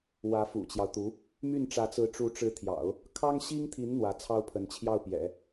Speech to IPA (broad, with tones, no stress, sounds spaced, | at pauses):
w ä˧˥ f ṵ˨˩ t͡ɕ j ɑ˦ ʊ̯ t̪ u˧˥ | m y˥˩ n ʈ͡ʂ ä˧˥ t͡s ɹ̩˧˥ ʈ͡ʂ u˧˥ ʈ͡ʂ ɻ̩˧˥ t̪ʰ j ɑ̰˨˩˦ ʊ̯ | kʰ ɑ˥ ŋ ɕ i˥ ŋ t̪ʰ i˧˥ n n̪ w ä˧˥ t͡sʰ ɑ˥ ʊ̯ pʰ ə˧˥ n t͡ɕʰ j ɑ˥˩ ʊ̯ p j ɛ̰˨˩˦